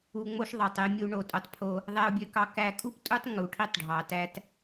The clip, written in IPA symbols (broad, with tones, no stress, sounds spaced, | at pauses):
u˨ ŋ͡m o˦ ʃ ðˤ ɑ˨ tˤ e˨ mʲ u˨ ɳ o˨ tʼ o˨ tˤ pʰ o˦ | ðˤ æ˨ ʊ̯ bʲ ø˨ k ɑ˨ k æ˨ kʼ u˦ p tʼ u˦ tˤ ŋ u˨ ʈʰ i˦ tˤ ɖʱ ɑ˨ t æ˦ t